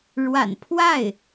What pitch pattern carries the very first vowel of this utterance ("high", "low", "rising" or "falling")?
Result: low